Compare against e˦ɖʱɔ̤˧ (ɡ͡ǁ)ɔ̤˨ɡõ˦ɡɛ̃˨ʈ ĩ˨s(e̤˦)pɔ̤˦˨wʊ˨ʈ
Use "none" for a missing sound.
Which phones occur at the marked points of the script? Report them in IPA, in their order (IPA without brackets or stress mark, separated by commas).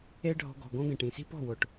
ɡ, i̤˦